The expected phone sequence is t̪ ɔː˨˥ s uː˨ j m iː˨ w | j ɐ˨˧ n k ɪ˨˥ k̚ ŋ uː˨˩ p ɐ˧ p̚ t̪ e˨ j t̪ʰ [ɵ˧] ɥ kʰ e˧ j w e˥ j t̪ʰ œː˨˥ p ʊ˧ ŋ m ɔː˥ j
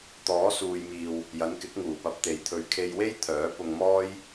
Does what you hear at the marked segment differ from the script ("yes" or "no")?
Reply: no